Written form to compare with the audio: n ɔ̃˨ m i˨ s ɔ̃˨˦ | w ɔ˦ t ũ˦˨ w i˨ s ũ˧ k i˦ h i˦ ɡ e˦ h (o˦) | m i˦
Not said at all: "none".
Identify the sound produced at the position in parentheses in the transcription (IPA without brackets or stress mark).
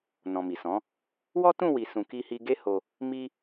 o˧